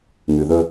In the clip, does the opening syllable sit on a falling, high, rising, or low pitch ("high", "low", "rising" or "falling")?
low